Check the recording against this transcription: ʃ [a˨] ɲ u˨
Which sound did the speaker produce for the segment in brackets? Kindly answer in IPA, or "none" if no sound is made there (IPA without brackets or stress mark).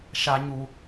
a˨